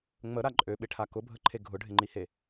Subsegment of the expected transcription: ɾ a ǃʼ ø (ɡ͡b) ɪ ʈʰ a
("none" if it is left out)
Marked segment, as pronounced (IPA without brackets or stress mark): ɓ